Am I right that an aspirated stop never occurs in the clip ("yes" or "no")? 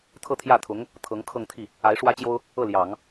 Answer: no